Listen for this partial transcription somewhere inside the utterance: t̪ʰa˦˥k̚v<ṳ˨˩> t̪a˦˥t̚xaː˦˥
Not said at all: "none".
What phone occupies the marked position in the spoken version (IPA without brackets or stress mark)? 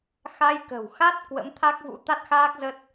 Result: ṵ˧˥